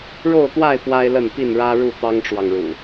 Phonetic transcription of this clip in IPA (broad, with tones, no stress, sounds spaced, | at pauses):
ɻ o˥˨ ʊ̯ t̪ w a˥˨ ɪ̯ p w a˦ ɪ̯ l ə˥˨ n p i˥˨ n ɻ ä˦ ɻ u˥˨ t̪ ɑ˦ ŋ ʈ͡ʂ w ɑ˨ ŋ ɻ ṵ˨˩